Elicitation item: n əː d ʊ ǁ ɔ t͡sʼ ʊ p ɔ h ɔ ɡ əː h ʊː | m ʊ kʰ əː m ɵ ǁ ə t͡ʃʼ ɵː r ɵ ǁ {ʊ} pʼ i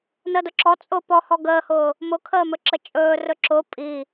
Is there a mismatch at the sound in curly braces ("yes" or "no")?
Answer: no